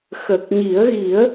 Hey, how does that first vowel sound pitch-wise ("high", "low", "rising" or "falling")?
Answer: low